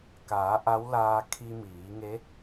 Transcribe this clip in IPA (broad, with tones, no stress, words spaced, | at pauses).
kaː˩˧ ʔa˧˥wlaː˧ kʰi˧miː˩˧ŋe˧˥